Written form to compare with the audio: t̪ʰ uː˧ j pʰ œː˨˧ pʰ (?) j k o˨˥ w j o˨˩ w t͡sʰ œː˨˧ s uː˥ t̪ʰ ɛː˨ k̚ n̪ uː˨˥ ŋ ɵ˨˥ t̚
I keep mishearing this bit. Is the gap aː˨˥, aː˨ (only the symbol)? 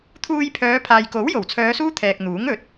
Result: aː˨